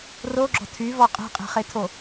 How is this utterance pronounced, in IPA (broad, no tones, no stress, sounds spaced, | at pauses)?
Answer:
r o ɡ͡ǁ ɔ̤ tʰ y v ɔ qʼ e̤ qʼ e̤ χ e tʰ o